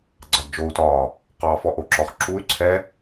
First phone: ɡ͡ǀ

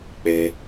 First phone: k͡p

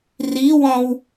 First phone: r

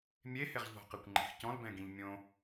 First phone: mʲ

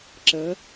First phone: ǁ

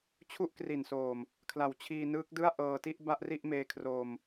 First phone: t͡ɕʰ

